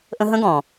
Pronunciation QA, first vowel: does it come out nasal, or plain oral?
nasal